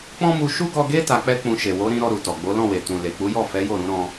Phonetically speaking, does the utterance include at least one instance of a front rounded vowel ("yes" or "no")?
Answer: no